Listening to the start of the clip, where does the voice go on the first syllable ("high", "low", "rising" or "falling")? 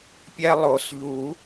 high